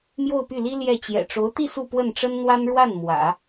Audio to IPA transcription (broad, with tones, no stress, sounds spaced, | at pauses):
m j o˥˧ ʊ̯ p y˥˩ l i˥ l j ɛ˥˩ t͡ɕ j ɛ̰˨˩ ʈ͡ʂ o˧˥ ʊ̯ t̪ i˥˧ s u˥˧ p w ə˥˩ n ʈ͡ʂ ə˥ n n̪ w a˥ n ɻ w a˥˩ n m w ä̰˨˩˦